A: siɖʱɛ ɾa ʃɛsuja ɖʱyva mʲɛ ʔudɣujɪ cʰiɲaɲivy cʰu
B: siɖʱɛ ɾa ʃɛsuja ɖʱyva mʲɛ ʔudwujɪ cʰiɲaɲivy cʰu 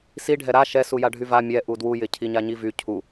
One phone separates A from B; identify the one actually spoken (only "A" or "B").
B